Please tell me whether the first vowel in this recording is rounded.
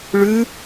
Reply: yes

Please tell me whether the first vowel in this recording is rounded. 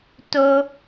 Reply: yes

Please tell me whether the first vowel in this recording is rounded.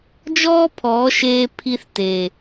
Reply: yes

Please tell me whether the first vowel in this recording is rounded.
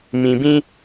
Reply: no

